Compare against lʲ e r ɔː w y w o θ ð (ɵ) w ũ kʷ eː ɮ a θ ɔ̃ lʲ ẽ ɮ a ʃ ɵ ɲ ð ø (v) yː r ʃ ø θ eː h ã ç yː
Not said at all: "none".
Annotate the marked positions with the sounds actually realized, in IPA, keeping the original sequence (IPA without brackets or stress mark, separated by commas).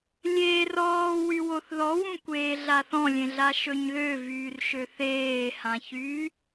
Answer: ɔ, v